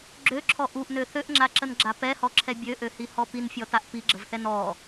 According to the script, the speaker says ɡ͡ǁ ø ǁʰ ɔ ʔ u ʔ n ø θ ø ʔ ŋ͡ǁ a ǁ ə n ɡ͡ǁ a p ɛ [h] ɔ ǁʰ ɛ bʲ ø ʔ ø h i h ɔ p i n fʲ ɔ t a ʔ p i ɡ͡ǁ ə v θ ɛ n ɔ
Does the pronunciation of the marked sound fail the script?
no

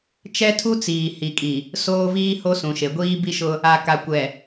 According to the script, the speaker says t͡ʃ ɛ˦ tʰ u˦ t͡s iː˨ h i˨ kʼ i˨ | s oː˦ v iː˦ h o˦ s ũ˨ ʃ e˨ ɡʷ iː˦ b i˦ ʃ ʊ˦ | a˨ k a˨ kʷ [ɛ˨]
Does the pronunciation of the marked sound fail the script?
no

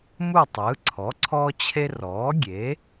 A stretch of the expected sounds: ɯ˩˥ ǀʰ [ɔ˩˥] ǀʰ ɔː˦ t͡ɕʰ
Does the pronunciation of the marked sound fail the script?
no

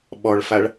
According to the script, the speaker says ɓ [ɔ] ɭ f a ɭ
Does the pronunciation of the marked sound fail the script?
no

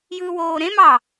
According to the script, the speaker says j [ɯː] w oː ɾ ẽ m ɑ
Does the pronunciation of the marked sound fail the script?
no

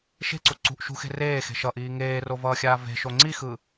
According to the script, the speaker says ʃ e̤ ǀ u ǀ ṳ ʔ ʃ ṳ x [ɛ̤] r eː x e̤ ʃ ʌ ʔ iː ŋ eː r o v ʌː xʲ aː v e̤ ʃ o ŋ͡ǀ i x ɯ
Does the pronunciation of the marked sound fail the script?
yes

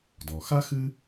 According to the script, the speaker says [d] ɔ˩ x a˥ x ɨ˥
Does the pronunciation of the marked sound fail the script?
no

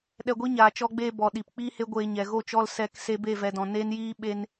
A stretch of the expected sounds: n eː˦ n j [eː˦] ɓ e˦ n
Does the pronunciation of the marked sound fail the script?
yes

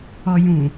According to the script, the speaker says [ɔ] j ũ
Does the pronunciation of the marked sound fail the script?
no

